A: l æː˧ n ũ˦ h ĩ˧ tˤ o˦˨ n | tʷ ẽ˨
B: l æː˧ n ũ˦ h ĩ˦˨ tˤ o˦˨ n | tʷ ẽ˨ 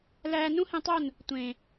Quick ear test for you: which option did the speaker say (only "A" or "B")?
A